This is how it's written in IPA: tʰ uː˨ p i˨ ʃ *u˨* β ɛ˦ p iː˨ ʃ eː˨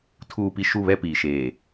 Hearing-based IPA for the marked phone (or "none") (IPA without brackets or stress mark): u˦˨